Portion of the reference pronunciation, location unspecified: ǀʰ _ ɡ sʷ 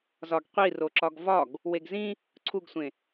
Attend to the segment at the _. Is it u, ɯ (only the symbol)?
u